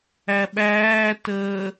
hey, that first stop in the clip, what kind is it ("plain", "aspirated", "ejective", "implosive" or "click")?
implosive